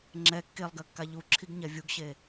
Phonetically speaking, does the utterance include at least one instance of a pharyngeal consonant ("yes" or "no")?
no